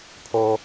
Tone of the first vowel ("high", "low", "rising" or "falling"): high